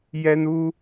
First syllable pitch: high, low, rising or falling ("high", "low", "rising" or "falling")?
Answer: high